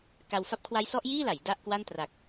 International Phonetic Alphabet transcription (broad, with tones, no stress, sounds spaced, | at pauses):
k a˧ w f a˦˥ p̚ kʰ w a˦˥ j s ɔ˦˥ ʔ j iː˥˩ l a˩˦ j d a˥˩ ʔ k w a˥˩ n t r a˨˩ k̚